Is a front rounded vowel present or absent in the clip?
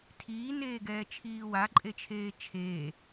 absent